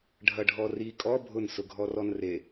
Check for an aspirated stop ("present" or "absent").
absent